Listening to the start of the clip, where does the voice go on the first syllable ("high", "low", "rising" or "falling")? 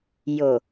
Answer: low